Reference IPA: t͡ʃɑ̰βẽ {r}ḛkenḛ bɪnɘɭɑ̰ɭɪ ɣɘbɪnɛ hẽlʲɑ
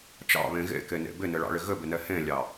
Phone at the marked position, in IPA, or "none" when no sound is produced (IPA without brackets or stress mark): ɣ